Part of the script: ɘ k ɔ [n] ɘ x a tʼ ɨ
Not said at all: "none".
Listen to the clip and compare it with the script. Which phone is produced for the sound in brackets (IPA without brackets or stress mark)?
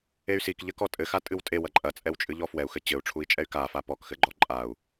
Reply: tʼ